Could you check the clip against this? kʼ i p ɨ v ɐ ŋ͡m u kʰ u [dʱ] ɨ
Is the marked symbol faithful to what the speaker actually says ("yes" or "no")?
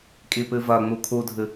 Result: yes